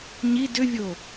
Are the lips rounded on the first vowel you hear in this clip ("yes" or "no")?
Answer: no